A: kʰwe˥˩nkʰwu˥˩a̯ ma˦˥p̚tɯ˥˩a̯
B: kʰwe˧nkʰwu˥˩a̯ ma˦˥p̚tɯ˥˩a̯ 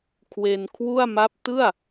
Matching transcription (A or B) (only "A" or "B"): B